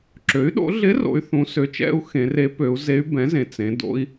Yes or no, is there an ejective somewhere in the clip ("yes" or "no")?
no